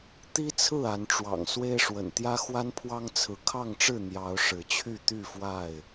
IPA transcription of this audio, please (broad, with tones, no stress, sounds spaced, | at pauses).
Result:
t̪ i˦ t͡sʰ ɹ̩˥˨ a˨˦ n ʈ͡ʂ w ɑ̰˨˩ ŋ s w e˦ ɪ̯ ʂ w ə̰˨˩ n t̪ j ä˦ x w a˦ n pʰ w ɑ˦ ŋ t͡sʰ ɹ̩˨˦ kʰ ɑ˥˨ ŋ ʈ͡ʂ ɻ̩˥˨ n̪ j ɑ˨˦ ʊ̯ ʂ ɻ̩˨˦ t͡ɕʰ y˥˨ t̪ y˥˨ f w a˥˨ ɪ̯